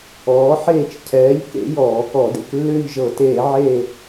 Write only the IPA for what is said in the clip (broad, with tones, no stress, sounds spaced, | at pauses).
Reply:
ɔː˨˥ ħ eː˦˨ t͡ʃ cʰ ɛː˨˥ ʎ k ḛ˨˥ j ɔː˧˩˧ k ɔ˧˩˧ d ḛ˩ k lː ʏː˦˨ ʎ ʒ ɤ˧˩˧ t eː˧˩˧ ʕ eː˦˨